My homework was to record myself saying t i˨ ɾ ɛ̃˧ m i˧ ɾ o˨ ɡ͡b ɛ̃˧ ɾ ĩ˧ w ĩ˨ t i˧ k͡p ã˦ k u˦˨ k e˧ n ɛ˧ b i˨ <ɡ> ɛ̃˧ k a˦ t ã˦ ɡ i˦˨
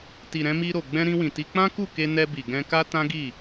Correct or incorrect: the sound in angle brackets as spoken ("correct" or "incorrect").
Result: correct